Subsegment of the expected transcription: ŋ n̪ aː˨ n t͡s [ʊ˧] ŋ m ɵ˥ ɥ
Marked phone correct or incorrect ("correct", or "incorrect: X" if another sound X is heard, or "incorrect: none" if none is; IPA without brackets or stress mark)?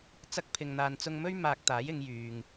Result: correct